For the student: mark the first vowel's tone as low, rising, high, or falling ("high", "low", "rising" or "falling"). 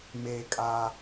low